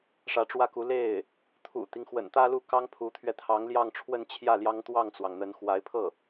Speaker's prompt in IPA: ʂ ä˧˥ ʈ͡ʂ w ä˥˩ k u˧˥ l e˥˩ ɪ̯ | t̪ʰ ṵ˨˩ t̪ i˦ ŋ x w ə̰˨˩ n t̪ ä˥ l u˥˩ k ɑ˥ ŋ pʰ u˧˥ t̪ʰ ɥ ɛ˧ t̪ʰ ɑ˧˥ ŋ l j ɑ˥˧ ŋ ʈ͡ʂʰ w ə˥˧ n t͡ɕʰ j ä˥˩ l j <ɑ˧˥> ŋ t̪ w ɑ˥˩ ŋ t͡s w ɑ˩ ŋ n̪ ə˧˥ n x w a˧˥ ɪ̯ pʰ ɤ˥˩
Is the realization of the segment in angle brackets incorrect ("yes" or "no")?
yes